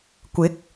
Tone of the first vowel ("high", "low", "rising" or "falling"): rising